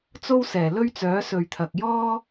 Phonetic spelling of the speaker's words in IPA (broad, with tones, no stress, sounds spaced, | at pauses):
t͡s o˥ w s ɛː˨˩ l ɵ˥ ɥ t͡s œː˨˥ s ɵ˨ ɥ t̪ʰ ɐ˨ k̚ j ɔː˥